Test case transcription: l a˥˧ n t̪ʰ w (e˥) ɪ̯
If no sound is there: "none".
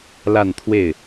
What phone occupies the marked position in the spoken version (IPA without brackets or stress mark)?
e˥˩